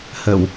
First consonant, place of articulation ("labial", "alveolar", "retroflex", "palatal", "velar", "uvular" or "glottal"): glottal